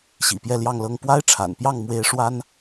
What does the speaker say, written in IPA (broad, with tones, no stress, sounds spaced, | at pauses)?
ɕ ḭ˨˩ p j ɛ˥˧ l j ɑ˥˧ ŋ l ɤ˥˩ ŋ p w a˥ ɪ̯ ʈ͡ʂʰ a̰˨˩ n p j ɑ˥˩ ŋ m w e˥ ɪ̯ ʂ w a˥ n